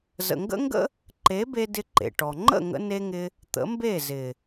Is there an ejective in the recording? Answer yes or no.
no